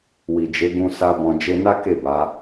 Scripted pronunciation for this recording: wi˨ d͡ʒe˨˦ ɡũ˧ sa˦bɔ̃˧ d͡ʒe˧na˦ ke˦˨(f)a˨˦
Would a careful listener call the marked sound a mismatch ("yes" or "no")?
yes